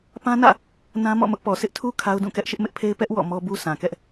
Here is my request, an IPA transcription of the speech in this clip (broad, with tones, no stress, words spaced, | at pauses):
pã˦nä̰˦˨ | nã˦mɔ̰˦˨mʊ˦ʔpɔ˨ sʰɪ˦ʔtʰu˦ kʰa˦ʊ̯dũ˦˨kɛ˦ʔ ʃɪ˦ʔmɪ˦ʔpʰe˦ɪ̯ pɛ˦ʔ wɔ̰˦˨mɔ˦bu˦ sʰã˨kɛ˦ʔ